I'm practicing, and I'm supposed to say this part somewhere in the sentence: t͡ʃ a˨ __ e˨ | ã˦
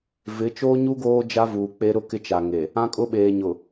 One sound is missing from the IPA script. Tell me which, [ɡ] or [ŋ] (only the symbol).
ŋ